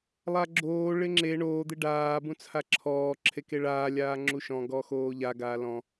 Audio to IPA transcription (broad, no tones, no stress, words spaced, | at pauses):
lˠaɡ͡ǁoː ɭɪŋ͡ǁe ɳoː d̪ɪɖaː bũt͡sʰaǁʰɔː ǁʰekeɭaː lʲaːŋ͡ǁuʃɔ̃ ɡɔxoːʎa ɡaːlɔ̃